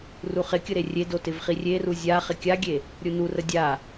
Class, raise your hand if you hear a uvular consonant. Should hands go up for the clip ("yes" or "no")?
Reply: yes